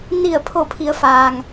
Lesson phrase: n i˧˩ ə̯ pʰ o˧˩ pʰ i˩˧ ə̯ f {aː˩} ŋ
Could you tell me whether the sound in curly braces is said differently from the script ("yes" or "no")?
no